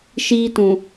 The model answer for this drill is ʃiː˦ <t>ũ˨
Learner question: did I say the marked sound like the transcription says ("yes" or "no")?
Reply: yes